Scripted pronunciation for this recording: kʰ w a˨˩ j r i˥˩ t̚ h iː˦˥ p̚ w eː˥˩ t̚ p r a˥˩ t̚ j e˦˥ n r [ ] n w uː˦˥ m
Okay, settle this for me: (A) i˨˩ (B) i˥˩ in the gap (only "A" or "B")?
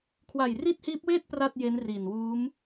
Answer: A